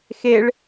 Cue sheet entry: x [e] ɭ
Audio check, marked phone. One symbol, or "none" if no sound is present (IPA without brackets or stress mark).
e